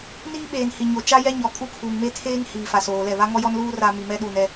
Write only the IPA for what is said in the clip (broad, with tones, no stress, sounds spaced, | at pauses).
n iː˦ ɓ eː˨ n h i˨ ɲ o˨ t͡ʃ a˦ j ɛ˦ ɲ ɔ˨ kʼ u˦ kʰ uː˨ ŋ m e˦ tʰ eː˦ ŋ h iː˨ f a˨ s oː˨ l ɛ˦˨ β a˦ ŋ ɔ˦ j ɔ˦ n l uː˦ r a˦ m i˨ m ɛ˦ ɗ uː˨ n ɛ˦